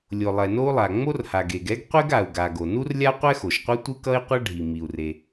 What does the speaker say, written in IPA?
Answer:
lʲ o˩ lˠ ɛ˩ n o˥ u̯ lˠ a˩ ŋ͡m o˥ r h a˩ ɡ e˩ ɡ ɛ˥ ɡ qʷ e˥ ɡ a˩ u̯ ɡ a˩ ɡ o˩ n u˥ r lʲ a˥ qʷ ɛ˥ x o˩ ʃ qʷ ɛ˥ tʷ ɯ˥ k ʌ˥ i̯ qʷ ʌ˥ ɖʱ i˩ m i˩ u̯ r e˩

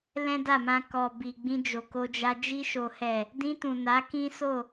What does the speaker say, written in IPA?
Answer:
l ɛ̃˦ d a˦˨ m ã˧ k ɔ˨ b i˨ ɡ͡b ĩ˧ d͡ʒ o˨ k o˧ d͡ʒ a˧ d͡ʒ i˧ ʃ o˨ h ɛ˨ | d ĩ˧ t ũ˨ n a˨˦ k ĩ˦ s o˦˨

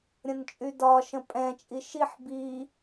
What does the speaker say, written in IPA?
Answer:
ɾʲ ə̃ n t͡ʃʼ y d ɒ ʃ ə̃ pʼ ɛ̃ t͡ʃʼ i ʃ i ħ b i

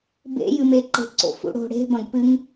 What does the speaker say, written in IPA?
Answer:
b ḛ j ɨ m e ǃ e̤ ǀ o̰ f ṵ ɽ o̤ ɽ e̤ b ɐ̃ ɡ p ɨ ŋ

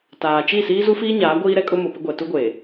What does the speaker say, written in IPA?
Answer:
t aː˨ t͡ʃ i˦˨ s iː˦ z u˦ f iː˦ ɲ aː˨˦ ɡʷ iː˦ ɾ ɛ˦ kʼ ʊ˦ m ʊ˨ p ɪ˦ ɡʷ ɛ˨ t u˦ ɡʷ eː˨

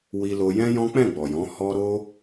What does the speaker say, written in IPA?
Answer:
w i˧ l o˧ j ɛ̃˦ j ɔ̃˦ k͡p ɛ̃˦˨ ɡ͡b ɔ˨ j ɔ̃˨˦ h ɔ˧ ɾ o˦

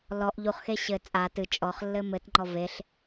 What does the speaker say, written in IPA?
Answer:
l ɔ ʔ ʎ u χ x e ɕ ɘ t͡sʼ a t ɨ t͡ʃʼ ɔ χ lː ɘ m ɘ t ŋ͡ǃ ɔ v e ɬ

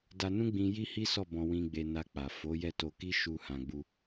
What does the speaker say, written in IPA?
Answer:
d a˧ n ũ˦ ɡ͡b ĩ˧ j i˦ h i˦ s ɔ˦˨ b ɔ̃˧ w ĩ˧ ɡ͡b e˧ n a˧ k͡p a˨ f o˨˦ j ɛ˦˨ t o˧ k i˦ ʃ u˧ h ã˧ ɡ͡b u˦

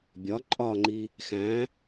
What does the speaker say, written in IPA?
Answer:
bʲ ɒ ǃʼ ɒ ŋ͡ǃ i | x æ̃

